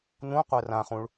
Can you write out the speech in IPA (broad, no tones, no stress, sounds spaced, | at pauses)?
n ũ qʷ ɛ r ã χ ũ ɭ